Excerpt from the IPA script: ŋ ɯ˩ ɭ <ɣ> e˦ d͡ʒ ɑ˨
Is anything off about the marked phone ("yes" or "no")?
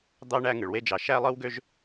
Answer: yes